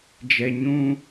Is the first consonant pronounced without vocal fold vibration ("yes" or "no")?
no